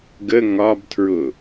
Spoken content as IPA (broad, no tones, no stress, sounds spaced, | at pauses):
ɡ ə ŋ ɒ b tʰ ɹ ʊ